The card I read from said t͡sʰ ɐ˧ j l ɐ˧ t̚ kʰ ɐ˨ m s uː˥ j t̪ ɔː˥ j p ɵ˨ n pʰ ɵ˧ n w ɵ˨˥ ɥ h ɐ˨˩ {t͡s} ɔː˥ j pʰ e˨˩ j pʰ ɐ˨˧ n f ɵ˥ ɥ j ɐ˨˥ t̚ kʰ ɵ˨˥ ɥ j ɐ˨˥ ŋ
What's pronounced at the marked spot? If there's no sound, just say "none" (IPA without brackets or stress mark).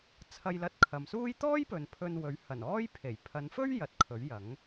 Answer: n